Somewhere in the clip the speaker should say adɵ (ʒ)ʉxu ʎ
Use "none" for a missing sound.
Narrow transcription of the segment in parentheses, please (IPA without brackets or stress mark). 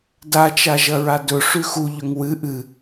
ʂ